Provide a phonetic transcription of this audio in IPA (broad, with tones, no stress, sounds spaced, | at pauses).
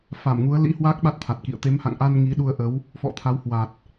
f a˧˩ m ŋ u˨˦ ə̯ l ḭ˧˥ h w a˦˥ k̚ ɓ a˦˥ t̚ t̪ʰ a˨˩ t̚ k ḭ˧˨ ə̯ t̪ e˨˦ m h a̰˧˨ ŋ ʔ a˧ n ŋ i˨˦ ɗ u˧ ə̯ ʔ ə˨˦ w | f ɔ̰˧˨ t̪ʰ a˨˦ w h w a˨˩ t̚